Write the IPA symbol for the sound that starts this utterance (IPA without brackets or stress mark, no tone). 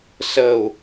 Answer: s